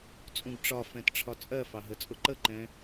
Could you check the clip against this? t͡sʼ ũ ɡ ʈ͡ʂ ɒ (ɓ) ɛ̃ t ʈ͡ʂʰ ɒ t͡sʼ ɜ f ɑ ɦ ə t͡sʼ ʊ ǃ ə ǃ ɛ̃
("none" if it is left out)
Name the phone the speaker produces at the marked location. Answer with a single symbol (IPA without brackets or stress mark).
f